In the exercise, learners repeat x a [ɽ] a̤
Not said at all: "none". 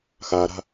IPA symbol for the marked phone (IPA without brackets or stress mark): ɾ